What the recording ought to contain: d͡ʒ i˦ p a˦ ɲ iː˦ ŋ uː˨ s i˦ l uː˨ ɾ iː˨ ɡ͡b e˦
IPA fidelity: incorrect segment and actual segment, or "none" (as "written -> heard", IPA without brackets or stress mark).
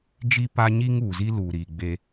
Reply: s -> z